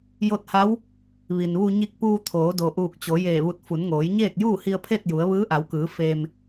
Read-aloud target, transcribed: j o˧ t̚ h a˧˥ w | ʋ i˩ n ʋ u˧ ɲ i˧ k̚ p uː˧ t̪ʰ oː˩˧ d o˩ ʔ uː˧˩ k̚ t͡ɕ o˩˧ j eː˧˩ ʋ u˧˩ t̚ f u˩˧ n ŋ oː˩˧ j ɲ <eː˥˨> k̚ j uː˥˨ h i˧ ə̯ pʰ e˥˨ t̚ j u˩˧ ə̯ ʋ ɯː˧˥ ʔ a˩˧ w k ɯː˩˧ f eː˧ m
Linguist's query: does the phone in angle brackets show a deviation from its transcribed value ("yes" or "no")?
no